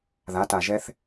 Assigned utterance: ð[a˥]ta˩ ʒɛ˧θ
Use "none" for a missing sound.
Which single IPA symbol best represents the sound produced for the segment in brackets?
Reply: a˩˧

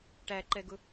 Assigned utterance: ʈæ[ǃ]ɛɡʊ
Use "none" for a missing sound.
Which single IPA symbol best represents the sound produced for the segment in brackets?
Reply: ǃ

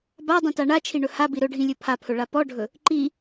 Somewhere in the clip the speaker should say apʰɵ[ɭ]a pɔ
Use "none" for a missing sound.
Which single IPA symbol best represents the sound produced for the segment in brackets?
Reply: ɭ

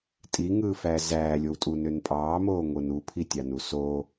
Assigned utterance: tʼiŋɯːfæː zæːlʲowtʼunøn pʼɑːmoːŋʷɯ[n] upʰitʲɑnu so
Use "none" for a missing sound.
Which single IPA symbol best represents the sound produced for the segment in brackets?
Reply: n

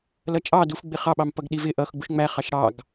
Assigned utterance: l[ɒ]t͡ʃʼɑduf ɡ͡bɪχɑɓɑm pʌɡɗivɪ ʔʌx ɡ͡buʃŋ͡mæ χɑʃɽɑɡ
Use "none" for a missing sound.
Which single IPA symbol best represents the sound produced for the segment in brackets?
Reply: ʌ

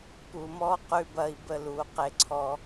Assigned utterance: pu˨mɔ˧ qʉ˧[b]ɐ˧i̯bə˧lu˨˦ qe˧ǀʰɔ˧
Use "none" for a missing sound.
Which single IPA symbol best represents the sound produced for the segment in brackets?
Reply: b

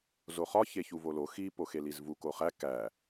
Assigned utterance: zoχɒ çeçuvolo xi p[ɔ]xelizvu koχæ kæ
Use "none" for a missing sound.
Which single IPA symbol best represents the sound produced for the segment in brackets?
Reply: o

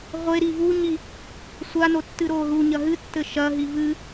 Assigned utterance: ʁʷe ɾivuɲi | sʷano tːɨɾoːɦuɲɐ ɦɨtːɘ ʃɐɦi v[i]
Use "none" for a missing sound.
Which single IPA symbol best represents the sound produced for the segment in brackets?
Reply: ɨ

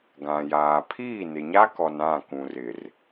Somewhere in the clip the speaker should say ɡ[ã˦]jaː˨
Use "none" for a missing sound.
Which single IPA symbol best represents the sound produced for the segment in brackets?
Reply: ã˨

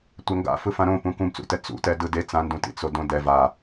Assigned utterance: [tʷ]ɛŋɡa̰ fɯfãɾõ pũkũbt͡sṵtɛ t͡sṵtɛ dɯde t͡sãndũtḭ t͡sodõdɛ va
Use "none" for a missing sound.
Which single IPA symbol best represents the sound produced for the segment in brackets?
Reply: tʷ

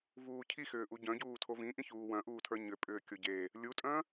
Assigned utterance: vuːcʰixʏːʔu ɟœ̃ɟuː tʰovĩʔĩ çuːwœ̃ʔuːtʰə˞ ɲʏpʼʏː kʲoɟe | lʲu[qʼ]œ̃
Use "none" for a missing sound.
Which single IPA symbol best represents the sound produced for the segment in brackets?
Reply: tʼ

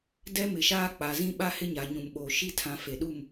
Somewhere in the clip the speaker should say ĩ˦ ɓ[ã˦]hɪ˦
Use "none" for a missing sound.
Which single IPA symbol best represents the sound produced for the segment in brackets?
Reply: a˦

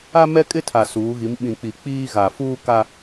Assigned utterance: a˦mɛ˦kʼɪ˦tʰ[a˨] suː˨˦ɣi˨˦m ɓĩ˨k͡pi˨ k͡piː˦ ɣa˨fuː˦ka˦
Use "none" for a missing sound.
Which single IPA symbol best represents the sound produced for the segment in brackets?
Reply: a˨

